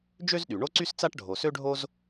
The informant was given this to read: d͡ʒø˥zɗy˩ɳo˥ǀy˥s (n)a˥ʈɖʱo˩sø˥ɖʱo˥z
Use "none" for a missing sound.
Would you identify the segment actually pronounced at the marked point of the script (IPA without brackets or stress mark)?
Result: t͡s